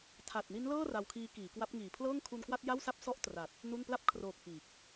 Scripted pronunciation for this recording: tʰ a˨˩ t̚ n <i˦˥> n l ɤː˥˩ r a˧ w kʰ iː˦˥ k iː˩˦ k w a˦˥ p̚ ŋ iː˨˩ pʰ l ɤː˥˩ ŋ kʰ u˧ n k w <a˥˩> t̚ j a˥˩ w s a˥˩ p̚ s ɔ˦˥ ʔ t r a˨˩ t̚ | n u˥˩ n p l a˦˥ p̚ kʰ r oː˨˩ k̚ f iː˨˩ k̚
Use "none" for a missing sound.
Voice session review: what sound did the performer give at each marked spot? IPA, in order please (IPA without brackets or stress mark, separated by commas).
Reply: i˦˥, a˥˩